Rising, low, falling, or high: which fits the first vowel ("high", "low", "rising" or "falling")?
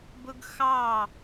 high